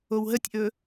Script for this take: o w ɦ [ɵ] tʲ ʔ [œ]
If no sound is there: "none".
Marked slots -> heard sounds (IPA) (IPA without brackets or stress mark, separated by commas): ə, ɵ